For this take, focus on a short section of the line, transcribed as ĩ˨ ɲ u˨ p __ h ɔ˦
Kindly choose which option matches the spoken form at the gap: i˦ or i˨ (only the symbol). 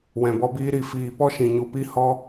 i˦